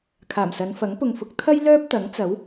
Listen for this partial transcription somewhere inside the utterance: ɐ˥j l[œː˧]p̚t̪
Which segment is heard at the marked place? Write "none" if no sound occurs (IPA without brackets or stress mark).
œː˥